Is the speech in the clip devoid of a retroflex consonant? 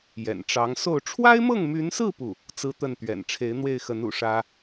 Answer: no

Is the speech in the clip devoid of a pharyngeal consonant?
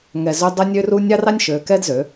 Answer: yes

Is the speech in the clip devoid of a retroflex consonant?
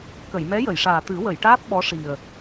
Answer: no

